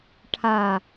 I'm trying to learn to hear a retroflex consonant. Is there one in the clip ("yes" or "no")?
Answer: yes